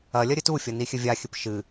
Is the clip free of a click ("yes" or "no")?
yes